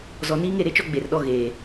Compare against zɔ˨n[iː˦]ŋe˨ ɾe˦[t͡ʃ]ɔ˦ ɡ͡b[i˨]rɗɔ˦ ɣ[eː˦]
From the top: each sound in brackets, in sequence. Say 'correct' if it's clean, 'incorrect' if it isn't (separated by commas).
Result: correct, correct, incorrect, incorrect